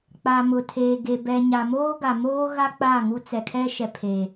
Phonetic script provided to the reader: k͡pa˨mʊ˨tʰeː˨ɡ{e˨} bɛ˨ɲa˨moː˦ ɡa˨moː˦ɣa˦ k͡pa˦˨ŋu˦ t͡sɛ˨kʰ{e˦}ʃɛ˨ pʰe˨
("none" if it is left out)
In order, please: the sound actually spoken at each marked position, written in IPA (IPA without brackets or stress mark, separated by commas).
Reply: e˨, ɛ˦